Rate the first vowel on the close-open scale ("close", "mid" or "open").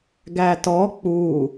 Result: open